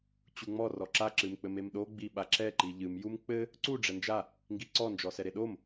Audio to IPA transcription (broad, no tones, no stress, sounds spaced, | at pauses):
t͡ɕ u ŋ͡m ɔ r ɔ ǁ a ǁ ɨ m k͡p ɘ m e m ɗ o ɡ͡b i ɓ a ǁ ɛ ǃ i ʎ ɨ m j u m k͡p ɘ | ǀ u ɖ͡ʐ ɛ n d͡ʒ a | ŋ ɡ i ǀ ɔ n d͡ʒ ɔ s ɛ ɾ e ɗ o m